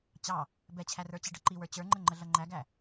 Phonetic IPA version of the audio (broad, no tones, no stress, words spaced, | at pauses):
t͡ɕɑ | bɛt͡ɕʰærə˞ t͡ɕiɖʌǃiwə˞ t͡ɕə˞ŋ͡ǃə ŋ͡ǃəɮʌŋ͡ǃæɡæ